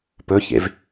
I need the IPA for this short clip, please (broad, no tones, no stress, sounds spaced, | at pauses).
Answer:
p ɵ ç ḛ v